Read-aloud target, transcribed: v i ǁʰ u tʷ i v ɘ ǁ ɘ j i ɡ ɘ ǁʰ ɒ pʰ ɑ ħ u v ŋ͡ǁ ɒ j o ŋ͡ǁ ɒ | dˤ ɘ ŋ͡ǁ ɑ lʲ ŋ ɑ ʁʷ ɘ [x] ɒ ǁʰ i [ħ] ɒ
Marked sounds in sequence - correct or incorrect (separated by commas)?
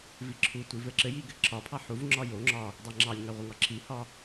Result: incorrect, incorrect